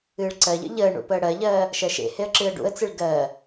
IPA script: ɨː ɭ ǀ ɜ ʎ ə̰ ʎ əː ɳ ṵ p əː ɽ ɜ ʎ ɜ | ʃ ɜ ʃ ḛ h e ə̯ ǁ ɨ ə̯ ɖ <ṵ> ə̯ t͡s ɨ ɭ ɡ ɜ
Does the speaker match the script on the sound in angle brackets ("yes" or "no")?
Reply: yes